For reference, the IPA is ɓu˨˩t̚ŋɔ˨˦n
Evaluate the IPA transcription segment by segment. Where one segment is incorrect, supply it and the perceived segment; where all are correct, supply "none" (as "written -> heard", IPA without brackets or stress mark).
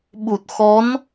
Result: ŋ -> x